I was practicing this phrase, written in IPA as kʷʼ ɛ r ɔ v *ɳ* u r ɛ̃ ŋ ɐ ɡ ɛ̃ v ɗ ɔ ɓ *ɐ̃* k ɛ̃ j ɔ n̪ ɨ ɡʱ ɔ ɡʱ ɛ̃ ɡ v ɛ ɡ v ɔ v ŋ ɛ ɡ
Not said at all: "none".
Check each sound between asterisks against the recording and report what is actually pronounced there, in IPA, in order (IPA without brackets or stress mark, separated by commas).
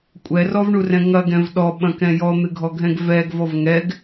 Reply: ɳ, ɐ̃